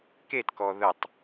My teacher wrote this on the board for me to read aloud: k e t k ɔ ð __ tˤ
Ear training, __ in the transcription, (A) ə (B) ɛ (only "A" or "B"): A